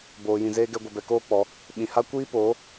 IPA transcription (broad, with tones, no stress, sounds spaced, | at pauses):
b oː˧ j ĩ˧ z eː˦ ɡ ɛ˦ ɡʷ ə˧ b ɛ˧ k oː˦ k͡p ɔ˨˦ | ɓ ĩ˧ h a˦ kʷ iː˦ p oː˨˦